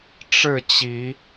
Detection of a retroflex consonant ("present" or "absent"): present